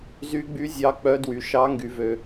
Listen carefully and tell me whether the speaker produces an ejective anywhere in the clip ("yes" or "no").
no